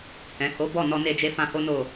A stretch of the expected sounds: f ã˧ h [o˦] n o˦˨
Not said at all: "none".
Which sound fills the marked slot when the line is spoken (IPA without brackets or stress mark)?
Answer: o˦